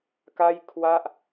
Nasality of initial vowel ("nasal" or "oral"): oral